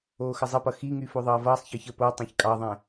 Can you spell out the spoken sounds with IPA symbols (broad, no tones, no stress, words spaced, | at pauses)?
oːxəzˤəpʌ xiŋy foðˤʌːvʌːsˤçəːç ə po tˤɛ̃çkʼɑðˤɛ̃